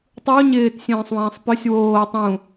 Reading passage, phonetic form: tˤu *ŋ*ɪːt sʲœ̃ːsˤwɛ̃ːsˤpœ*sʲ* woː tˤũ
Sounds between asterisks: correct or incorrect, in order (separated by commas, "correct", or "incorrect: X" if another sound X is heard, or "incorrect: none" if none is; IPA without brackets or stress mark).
incorrect: ɲ, correct